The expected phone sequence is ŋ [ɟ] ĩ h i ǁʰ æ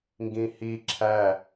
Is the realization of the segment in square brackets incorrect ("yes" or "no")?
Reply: yes